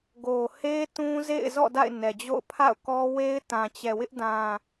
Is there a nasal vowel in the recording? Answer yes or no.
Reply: yes